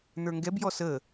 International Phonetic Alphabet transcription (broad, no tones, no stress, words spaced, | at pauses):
n̪ə˞ŋɡɛbjɔ sə